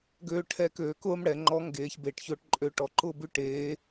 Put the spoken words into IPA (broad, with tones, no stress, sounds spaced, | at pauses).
ɡ øː˧ ʈʰ ɛː˧ k øː˩˧ k ʊː˥ m ɽ ɛ˩˧ ŋ͡ǃ ɔ˧˥ ŋ ɡ eː˧˥ ç b e˧ ʈ ç ʊː˥ ʈ ǃʼ ø˥ ʈ ɔ˧ ǃ ʊː˥ b ʉ˥ ʈ eː˧˥